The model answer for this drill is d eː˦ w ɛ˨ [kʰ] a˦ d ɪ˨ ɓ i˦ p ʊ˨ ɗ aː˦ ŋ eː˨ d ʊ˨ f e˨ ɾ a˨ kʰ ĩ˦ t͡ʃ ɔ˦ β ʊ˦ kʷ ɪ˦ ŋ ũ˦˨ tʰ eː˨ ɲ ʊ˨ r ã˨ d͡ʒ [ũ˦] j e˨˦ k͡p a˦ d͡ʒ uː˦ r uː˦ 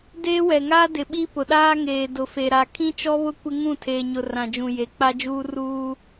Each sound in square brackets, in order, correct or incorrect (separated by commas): incorrect, incorrect